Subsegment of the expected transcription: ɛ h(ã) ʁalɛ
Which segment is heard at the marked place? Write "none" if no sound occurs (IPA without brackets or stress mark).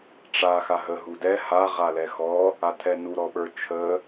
a